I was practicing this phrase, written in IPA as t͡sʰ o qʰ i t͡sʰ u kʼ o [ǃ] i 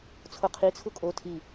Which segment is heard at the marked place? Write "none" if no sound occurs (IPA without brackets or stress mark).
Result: tʰ